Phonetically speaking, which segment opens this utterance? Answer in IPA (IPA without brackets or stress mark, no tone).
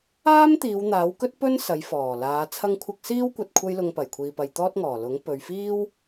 aː